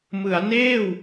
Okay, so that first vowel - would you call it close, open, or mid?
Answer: close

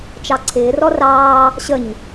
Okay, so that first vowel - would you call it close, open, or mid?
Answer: open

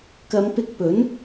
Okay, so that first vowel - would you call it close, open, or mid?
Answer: open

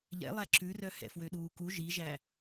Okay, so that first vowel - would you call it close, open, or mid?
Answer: mid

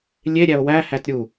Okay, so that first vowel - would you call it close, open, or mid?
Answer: mid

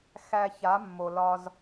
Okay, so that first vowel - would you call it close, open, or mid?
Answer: open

